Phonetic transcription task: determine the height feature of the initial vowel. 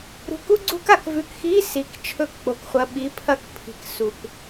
high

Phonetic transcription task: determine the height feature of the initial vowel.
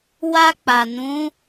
low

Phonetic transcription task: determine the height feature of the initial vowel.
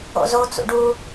mid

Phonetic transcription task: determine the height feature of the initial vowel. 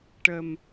mid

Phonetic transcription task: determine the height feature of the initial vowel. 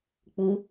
high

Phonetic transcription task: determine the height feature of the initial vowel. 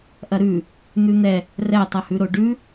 low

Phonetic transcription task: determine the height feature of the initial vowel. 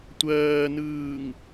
mid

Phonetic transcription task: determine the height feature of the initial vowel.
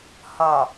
low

